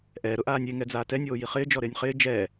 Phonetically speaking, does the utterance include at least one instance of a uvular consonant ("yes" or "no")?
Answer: yes